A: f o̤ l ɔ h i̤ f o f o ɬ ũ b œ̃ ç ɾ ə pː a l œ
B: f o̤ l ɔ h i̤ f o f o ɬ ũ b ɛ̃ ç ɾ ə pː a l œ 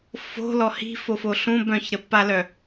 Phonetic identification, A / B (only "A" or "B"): A